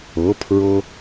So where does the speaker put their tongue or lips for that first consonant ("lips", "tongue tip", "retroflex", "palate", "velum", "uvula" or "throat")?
lips